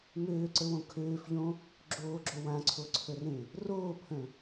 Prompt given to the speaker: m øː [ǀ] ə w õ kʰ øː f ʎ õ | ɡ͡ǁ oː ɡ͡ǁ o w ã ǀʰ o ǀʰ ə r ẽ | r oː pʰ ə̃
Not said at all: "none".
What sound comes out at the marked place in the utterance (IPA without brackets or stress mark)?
ǀ